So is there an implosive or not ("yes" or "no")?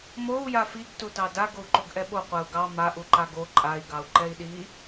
yes